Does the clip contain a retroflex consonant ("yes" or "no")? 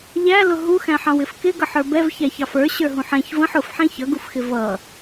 no